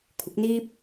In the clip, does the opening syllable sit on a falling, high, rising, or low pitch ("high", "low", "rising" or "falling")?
rising